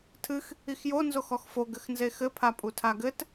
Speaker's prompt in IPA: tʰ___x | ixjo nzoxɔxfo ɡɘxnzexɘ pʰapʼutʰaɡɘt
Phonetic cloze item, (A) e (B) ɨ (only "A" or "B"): B